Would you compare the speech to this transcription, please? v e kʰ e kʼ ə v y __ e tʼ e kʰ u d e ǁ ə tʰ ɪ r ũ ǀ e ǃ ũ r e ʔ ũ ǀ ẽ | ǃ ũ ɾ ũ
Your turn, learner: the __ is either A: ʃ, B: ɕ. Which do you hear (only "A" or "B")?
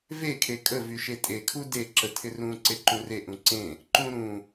A